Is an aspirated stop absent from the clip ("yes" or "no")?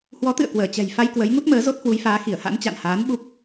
yes